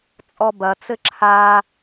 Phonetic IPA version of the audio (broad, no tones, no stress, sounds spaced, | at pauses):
t͡sʼ ɔ b ɐ t͡s ɘ ǁʰ a